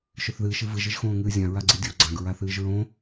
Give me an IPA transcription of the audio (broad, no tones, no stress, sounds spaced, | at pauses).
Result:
ʃ ɵ θ ð ɨː ʃ ɨ v ɨ ʒ ɨ ʒ x õː ŋ ɨː zʲ ã ɹ a ɡ͡ǀ i dʲ o ɡ͡ǀ ã ɡ ɹ a θ ɨː ʒ ɹ õ